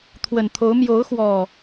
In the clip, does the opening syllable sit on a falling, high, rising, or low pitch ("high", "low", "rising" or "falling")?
low